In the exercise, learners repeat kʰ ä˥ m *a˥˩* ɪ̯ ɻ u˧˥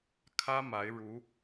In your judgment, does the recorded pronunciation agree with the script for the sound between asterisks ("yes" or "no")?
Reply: no